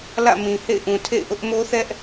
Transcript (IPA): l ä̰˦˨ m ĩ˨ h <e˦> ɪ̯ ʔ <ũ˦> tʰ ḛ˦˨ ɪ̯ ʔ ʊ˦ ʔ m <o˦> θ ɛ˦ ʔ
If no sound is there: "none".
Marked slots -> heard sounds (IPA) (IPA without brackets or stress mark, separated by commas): ḛ˦˨, ũ˨, o˦